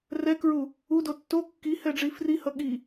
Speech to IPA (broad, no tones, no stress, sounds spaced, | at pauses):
r ɛ k ɹ u | u d o tː o kː i h ɛ ɖ͡ʐ i f r i h ʌ ɠ i